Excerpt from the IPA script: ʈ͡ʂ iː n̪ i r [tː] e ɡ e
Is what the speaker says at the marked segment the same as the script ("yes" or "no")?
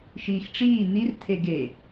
no